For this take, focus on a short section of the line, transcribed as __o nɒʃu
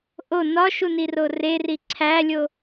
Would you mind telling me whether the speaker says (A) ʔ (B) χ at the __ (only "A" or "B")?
A